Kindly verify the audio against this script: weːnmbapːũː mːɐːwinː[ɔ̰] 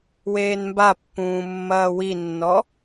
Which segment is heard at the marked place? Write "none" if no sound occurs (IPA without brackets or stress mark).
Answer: ɔ